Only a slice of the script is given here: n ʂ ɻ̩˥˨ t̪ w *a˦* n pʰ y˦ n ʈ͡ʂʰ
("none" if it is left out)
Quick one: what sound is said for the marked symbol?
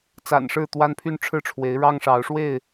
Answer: a˦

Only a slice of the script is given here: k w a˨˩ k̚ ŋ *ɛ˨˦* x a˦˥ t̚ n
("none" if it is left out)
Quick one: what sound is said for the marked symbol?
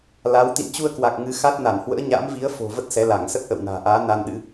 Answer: ɨ˨˦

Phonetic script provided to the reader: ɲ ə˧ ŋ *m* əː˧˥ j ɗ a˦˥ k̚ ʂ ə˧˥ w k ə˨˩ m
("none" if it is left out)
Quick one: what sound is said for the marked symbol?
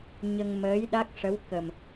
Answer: m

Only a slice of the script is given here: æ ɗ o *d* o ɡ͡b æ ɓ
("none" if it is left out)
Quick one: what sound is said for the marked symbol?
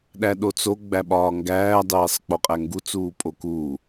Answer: t͡s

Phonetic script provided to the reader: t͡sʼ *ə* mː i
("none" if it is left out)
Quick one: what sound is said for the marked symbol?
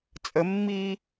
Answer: ə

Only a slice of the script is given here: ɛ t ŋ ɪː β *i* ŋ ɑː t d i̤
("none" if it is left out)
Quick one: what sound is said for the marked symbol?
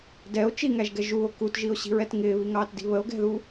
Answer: i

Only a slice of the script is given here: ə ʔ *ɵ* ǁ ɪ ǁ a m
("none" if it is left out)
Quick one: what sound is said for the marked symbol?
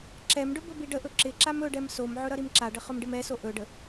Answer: ɵ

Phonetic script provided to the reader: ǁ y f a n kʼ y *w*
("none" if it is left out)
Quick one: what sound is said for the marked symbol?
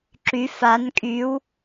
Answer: w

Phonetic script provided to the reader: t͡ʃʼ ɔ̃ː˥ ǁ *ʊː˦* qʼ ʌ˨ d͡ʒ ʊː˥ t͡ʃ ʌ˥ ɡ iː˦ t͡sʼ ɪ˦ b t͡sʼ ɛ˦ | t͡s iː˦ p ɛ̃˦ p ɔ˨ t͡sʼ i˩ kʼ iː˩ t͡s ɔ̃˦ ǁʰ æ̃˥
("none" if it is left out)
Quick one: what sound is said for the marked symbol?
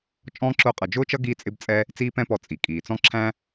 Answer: ʊː˦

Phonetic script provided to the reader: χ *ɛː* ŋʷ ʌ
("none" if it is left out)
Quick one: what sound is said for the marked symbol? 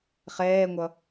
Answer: ɛː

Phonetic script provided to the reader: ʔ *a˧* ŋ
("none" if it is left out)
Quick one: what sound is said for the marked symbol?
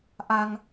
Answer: a˧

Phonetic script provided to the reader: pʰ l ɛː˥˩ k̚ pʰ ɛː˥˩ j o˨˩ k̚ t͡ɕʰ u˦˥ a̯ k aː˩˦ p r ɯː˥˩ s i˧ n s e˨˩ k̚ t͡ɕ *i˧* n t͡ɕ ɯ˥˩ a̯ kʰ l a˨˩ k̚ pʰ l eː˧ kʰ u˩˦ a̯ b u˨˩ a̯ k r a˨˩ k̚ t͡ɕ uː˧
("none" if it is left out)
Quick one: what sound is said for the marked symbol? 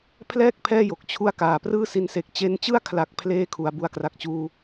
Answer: e˧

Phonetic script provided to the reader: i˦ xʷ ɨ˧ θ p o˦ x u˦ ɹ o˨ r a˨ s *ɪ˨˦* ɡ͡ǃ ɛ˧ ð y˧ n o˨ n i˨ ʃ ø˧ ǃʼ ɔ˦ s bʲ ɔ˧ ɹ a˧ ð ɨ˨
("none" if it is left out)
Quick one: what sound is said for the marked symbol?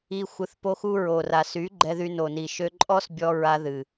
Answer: y˨˦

